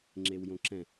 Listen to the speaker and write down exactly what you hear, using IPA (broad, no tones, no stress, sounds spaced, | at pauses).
ŋ͡ǁ e w j õ ǁ ɛ̃